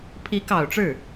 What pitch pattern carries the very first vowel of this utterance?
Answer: rising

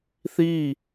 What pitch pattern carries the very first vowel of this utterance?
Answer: falling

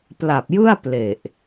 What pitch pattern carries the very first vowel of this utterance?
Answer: low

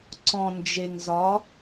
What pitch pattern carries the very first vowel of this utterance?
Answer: low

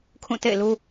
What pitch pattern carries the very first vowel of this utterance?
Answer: falling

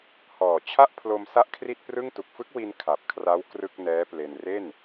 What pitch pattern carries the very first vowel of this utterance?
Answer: low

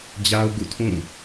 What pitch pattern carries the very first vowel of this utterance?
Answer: high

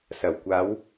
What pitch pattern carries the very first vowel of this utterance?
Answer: low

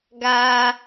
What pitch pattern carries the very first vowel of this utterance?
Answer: high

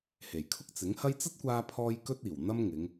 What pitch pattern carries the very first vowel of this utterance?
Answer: low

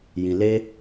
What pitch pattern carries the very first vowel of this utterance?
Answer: low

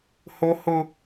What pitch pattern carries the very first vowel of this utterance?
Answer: high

